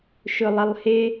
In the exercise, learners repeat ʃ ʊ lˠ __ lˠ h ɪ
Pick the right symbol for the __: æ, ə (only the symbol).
ə